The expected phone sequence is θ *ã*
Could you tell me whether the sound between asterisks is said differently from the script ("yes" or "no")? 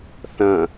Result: yes